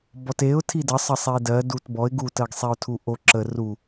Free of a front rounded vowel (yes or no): yes